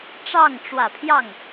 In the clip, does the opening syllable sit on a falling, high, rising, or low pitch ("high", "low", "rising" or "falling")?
falling